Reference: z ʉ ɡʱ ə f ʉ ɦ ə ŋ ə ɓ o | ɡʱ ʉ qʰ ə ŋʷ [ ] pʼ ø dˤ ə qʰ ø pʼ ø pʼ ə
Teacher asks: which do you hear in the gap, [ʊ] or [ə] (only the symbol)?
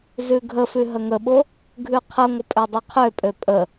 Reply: ə